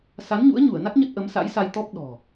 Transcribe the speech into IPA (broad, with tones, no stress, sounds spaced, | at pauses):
s a˨˦ n ɲ ṵ˧˥ ə̯ ɲ u˧˩ ə̯ n a˦˥ k̚ ɲ ə˦˥ t̚ ʔ ə˨˦ m s a̰˧˥ j s a˧ j t̪ ɔ˦˥ p̚ ɗ ɔ̤˨˩